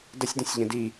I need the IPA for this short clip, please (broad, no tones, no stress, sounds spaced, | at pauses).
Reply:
d ə sʲ d ə̃ sʲ ʎ ə̃ d i